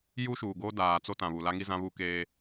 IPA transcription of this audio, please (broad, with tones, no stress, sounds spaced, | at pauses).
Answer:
j u˦ ʃ uː˨ ɡ o˦ d aː˨ t͡s o˦ t ã˨ β u˨ l a˦ ŋ i˦ z ã˦ β u˦ k eː˦